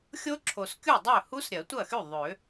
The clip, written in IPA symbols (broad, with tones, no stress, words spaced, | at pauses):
xʲo˦˥ǁʰo˨skʲu˥˩dˤø˥˩ hu˦˥sɾʲɐ˨˩˦tʷɐ˥˩xy˥˩ ðˤø˨˩˦